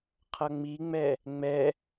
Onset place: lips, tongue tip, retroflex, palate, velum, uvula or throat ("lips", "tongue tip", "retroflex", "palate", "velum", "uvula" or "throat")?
uvula